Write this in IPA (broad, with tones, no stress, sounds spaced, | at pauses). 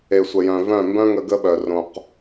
e˨ sʷ ə˨ j œ̃˨ v œ̃˦˨ m b œ̃˦ ŋ ə˧ ɡ ə˦ ɓ œ˨ r õ˧ q